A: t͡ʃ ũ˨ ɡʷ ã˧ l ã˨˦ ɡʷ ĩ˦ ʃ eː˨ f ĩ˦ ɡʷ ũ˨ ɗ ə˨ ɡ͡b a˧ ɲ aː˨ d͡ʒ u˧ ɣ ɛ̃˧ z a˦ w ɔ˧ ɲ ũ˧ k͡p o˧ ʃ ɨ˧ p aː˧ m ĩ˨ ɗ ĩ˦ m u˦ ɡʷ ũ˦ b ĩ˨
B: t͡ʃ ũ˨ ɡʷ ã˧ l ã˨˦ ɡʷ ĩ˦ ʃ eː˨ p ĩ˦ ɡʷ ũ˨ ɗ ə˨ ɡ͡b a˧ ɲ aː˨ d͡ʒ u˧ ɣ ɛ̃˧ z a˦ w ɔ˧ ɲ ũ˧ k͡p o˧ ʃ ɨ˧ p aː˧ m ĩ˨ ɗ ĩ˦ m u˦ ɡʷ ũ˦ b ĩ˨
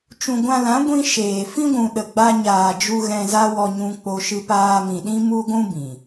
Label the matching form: A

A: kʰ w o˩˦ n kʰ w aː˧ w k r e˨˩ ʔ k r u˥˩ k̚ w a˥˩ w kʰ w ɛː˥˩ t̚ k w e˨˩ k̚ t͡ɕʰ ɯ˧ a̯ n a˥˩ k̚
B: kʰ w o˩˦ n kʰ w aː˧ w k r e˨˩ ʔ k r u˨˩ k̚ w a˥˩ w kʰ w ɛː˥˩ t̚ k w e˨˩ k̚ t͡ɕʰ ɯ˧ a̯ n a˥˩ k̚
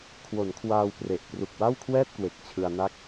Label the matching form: B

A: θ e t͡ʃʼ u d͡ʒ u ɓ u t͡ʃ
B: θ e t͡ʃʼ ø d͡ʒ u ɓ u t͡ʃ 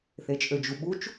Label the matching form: B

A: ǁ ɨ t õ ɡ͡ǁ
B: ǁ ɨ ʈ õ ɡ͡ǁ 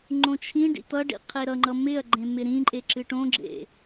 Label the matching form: B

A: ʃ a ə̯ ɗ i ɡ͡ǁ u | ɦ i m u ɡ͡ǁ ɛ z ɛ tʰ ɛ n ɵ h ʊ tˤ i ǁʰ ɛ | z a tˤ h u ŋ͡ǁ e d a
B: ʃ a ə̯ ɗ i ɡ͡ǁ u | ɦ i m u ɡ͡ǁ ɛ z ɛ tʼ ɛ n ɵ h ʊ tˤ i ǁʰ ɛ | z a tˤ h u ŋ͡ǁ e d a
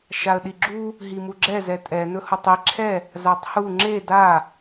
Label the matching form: B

